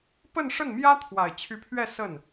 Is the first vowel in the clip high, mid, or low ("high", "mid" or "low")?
mid